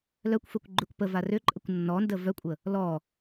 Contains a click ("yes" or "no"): yes